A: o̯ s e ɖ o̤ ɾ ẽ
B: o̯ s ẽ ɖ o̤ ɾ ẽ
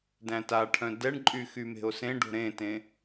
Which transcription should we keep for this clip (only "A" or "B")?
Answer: B